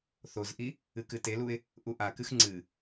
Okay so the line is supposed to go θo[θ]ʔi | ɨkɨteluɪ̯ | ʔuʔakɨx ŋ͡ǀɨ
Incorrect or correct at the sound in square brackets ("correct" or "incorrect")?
incorrect